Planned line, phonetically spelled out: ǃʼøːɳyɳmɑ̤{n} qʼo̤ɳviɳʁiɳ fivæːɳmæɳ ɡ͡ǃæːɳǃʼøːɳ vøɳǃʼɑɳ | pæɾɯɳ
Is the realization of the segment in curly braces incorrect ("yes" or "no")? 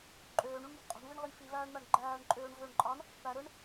yes